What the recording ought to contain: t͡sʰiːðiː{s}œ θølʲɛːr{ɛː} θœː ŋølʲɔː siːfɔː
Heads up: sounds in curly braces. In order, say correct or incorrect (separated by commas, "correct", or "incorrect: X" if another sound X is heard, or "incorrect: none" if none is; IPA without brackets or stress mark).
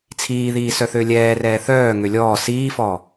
correct, correct